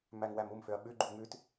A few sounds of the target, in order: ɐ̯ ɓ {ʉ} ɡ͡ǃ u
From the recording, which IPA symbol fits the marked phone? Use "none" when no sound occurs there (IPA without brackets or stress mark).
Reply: ʉ